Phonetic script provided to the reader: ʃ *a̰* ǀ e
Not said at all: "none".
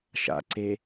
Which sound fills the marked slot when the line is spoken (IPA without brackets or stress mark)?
a̰